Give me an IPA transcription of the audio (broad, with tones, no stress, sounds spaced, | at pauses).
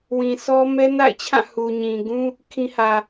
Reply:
w ĩ˨ sʰ ɔ˦ m ɛ˦ n a̰˦˨ ɪ̯ t͡ɕʰ ã˦˨ h u˨ ɲ ĩ˨ ɡ ũ˦ | kʰ ĩ˦ h ä˨